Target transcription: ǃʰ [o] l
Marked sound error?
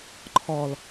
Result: yes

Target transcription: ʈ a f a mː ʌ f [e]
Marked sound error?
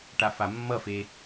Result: no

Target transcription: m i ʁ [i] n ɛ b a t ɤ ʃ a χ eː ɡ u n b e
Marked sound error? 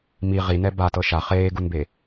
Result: no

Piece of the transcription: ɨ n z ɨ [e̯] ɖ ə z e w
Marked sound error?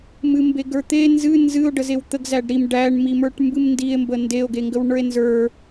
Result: yes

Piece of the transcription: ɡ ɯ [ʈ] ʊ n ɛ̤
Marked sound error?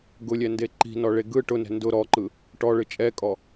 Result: no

